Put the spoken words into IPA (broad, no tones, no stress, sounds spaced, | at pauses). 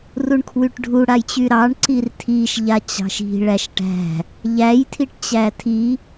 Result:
r u ɳ kʰ w y ʈ ɖʱ u ɽ a j t͡ɕ y ɾ ɑ ɳ ǀ i r tʰ i ʃ ʎ a t͡ɕ ɑ̤ ʃ i̤ ɭ æ ʃ ʈ æ̤ | ʎ æ j tʰ i ʈ t͡ɕ æ tʰ i